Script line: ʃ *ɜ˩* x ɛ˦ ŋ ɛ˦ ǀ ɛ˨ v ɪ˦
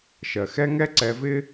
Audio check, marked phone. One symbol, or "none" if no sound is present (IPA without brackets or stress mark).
ɜ˩